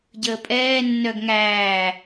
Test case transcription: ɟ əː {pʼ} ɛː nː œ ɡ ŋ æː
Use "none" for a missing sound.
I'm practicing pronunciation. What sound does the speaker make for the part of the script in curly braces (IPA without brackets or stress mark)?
pʼ